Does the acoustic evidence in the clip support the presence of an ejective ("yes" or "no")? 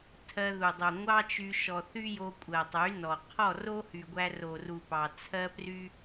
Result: yes